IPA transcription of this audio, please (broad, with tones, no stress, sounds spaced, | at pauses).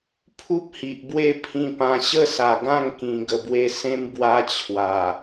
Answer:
pʰ u˦ p̚ h i˨ ʔ b w e˥˧ pʰ ĩ˧ p ã˧ ɕ ə˥˧ s a˨˩ ɡ ã˥˧ ŋ k ĩ˧ ɡ ə˧ b w e˦ s ẽ˦ m b w a˦ t͡ɕʰ w a˨˩